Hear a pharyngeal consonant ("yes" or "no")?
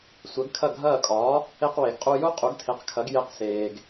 no